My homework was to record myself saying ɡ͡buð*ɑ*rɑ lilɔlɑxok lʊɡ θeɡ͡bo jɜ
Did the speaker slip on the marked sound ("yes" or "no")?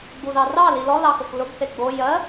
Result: no